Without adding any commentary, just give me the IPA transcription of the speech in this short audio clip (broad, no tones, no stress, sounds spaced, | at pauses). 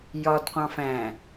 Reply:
j ɒ d qʷ ɑ̃ f æ̃